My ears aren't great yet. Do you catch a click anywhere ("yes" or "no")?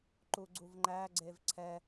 yes